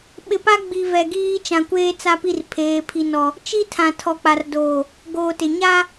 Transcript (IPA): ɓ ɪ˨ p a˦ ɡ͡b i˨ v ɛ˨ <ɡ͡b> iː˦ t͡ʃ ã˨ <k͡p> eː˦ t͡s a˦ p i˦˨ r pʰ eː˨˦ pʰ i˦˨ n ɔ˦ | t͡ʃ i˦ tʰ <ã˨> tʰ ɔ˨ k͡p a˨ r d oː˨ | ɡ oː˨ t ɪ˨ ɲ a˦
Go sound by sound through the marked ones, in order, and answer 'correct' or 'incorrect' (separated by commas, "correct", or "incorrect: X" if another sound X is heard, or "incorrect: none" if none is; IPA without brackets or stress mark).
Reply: incorrect: ɡ, incorrect: kʷ, correct